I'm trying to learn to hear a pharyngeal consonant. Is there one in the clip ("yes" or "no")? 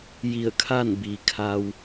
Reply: no